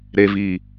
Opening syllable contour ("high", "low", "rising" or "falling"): low